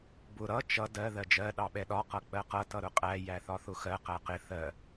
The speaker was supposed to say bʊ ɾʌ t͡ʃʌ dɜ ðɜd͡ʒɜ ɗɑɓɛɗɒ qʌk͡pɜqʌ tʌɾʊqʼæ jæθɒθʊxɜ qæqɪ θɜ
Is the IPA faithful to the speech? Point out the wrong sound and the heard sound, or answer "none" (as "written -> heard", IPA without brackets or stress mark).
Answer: none